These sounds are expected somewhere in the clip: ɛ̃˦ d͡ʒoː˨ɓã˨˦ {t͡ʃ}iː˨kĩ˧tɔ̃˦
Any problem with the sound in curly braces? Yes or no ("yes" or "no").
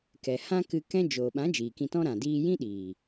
yes